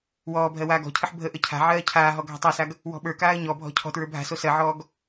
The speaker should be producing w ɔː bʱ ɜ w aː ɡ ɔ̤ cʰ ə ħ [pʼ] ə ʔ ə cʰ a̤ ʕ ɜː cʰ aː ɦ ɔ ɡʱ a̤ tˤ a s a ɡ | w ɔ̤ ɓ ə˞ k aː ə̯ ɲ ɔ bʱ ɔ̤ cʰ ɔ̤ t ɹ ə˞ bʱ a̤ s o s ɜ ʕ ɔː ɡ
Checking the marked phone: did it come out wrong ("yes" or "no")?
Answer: yes